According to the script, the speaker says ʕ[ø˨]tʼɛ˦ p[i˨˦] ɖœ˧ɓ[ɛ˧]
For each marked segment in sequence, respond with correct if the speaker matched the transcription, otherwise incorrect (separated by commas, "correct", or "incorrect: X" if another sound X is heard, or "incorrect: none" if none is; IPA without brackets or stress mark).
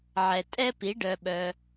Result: incorrect: ɛ˨, correct, incorrect: œ˧